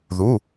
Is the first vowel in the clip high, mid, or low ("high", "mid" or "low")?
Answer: high